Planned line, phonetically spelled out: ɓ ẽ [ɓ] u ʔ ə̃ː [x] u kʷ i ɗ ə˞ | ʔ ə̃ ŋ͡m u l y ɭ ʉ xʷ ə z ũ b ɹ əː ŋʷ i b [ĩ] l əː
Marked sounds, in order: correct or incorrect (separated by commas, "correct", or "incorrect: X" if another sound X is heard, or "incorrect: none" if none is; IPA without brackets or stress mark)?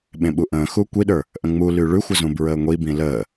correct, correct, correct